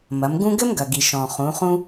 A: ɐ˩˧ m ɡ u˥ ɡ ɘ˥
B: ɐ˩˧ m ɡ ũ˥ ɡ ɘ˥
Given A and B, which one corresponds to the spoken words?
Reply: B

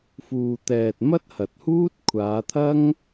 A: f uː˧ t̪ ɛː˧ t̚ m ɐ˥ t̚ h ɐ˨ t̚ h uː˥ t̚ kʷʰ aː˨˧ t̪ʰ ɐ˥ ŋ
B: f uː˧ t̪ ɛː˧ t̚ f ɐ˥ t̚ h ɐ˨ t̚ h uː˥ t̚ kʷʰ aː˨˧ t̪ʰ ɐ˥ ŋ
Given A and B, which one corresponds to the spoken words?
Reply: A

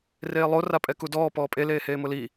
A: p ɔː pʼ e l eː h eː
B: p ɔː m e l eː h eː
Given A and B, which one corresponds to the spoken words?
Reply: A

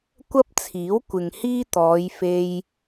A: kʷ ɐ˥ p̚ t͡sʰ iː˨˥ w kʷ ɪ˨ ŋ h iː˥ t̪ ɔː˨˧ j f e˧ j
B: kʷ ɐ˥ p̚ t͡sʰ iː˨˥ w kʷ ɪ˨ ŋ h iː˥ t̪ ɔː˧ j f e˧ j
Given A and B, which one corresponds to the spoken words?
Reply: A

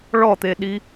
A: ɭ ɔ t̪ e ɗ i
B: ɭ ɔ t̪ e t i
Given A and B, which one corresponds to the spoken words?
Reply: A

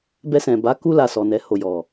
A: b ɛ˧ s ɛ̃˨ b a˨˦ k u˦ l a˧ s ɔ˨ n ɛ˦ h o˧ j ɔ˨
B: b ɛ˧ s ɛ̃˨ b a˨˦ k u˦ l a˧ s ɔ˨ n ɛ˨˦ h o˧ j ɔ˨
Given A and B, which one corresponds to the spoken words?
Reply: B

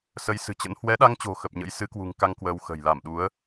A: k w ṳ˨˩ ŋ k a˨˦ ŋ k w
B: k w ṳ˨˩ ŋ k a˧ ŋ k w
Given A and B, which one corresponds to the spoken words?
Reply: B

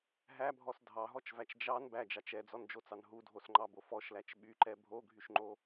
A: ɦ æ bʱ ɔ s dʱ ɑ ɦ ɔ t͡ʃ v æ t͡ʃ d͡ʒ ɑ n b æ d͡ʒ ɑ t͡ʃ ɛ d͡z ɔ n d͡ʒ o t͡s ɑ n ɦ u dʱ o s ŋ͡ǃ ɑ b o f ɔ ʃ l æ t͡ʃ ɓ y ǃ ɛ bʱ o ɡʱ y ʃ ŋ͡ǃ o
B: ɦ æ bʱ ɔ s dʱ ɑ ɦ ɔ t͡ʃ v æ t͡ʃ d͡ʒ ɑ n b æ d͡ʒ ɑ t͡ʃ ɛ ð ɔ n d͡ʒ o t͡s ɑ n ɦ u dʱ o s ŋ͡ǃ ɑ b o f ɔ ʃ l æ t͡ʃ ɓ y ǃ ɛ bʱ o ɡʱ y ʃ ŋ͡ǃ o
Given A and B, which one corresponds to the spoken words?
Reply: A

